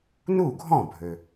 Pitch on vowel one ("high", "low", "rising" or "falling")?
falling